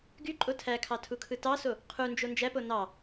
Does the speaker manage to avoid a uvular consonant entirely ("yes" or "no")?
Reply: no